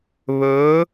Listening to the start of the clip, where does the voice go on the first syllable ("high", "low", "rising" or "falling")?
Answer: rising